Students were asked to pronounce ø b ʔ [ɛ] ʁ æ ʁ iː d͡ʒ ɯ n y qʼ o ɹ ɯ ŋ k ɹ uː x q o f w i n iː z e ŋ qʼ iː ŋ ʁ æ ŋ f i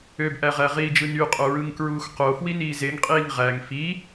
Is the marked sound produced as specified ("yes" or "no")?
no